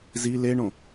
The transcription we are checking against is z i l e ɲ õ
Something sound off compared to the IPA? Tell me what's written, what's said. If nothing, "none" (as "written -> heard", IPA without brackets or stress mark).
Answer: ɲ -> ɳ